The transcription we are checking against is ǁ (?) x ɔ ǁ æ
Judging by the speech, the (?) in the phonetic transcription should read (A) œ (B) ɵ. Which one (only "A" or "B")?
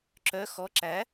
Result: A